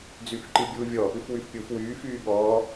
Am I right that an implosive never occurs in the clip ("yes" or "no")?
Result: no